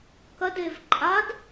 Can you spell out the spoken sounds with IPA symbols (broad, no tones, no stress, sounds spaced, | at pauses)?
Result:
k ɐ d e v ǃʼ a d